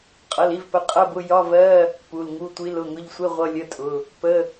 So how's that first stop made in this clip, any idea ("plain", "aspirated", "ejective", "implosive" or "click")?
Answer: ejective